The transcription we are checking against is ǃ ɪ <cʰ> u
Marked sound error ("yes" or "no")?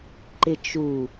yes